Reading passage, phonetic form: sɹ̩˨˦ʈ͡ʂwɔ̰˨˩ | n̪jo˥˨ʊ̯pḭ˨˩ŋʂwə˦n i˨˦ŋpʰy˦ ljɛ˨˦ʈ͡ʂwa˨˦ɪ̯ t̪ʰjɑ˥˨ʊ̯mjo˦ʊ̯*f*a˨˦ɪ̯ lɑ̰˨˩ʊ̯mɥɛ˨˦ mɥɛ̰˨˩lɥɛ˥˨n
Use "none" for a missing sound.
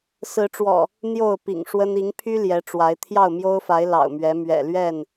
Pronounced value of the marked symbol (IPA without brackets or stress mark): f